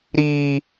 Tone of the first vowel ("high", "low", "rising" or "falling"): high